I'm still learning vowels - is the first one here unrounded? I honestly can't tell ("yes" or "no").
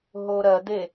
no